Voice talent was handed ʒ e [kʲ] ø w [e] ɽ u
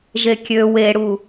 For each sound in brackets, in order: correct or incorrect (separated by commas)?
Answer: correct, correct